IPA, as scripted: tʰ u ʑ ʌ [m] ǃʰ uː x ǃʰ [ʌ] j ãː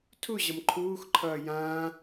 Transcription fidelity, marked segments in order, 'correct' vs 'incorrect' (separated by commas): correct, incorrect